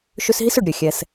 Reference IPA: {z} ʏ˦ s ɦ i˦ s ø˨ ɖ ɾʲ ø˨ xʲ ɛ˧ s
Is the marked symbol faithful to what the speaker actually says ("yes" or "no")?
no